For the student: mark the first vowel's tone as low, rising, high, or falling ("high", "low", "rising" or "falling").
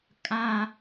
high